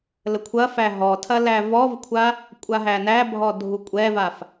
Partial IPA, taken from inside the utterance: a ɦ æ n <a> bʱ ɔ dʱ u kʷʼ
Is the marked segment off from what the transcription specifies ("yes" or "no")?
yes